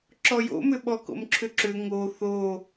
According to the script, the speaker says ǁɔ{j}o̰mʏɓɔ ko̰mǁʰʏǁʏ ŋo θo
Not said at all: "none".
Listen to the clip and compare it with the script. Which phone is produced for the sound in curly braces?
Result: j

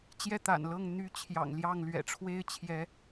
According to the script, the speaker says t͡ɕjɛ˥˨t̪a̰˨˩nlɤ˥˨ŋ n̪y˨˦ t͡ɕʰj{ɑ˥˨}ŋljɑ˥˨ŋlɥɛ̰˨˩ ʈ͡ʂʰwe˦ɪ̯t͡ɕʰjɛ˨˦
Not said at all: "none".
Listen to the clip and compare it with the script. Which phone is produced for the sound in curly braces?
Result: ɑ̰˨˩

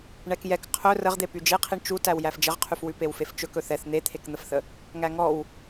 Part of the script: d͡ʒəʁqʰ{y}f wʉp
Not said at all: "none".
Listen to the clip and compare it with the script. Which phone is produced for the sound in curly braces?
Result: y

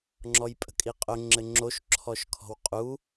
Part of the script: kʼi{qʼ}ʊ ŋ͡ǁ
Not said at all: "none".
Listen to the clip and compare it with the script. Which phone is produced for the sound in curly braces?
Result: qʼ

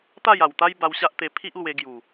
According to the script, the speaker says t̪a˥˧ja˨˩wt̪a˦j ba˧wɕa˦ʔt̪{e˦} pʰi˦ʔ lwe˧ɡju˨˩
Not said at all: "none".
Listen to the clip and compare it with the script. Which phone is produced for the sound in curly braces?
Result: e˧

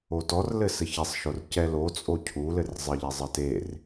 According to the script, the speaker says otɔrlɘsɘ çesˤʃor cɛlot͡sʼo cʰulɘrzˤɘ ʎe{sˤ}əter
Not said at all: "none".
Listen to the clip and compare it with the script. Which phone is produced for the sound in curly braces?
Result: zˤ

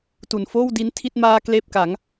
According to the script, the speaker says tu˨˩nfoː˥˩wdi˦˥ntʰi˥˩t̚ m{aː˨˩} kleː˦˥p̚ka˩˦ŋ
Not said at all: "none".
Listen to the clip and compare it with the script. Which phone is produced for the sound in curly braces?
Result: aː˧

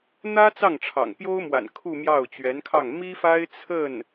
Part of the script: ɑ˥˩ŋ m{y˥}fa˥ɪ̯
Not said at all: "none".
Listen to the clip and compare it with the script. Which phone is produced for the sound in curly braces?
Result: i˥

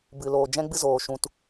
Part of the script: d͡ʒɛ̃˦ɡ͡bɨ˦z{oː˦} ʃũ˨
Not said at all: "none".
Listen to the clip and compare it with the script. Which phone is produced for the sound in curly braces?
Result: oː˨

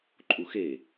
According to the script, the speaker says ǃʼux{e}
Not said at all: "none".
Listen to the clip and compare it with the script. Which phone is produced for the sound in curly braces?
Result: e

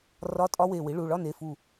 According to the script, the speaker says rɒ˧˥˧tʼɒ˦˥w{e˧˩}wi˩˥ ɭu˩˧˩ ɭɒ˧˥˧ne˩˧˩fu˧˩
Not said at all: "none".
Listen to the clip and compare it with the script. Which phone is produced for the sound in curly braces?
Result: e˧˩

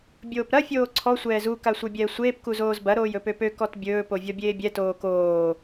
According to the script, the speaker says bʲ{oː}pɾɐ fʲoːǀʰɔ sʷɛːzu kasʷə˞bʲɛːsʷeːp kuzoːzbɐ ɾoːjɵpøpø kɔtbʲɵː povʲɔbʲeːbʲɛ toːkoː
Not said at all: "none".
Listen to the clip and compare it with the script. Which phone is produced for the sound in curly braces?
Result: oː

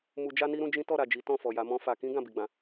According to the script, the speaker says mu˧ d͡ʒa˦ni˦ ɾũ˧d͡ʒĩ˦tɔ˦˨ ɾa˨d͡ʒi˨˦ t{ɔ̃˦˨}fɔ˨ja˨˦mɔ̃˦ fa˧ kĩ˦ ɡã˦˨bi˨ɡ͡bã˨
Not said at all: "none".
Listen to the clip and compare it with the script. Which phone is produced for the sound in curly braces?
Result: ɔ̃˦˨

